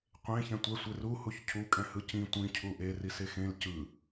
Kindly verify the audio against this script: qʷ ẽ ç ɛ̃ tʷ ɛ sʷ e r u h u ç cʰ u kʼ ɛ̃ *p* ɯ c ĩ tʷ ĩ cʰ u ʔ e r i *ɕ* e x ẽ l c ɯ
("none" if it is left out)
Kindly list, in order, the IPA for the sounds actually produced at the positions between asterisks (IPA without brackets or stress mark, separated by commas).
h, s